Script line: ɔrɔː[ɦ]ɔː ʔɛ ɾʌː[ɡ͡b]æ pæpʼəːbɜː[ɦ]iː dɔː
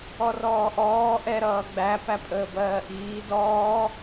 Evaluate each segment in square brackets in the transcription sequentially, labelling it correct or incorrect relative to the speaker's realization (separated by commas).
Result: incorrect, correct, incorrect